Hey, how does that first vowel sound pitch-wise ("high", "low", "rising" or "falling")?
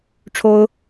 high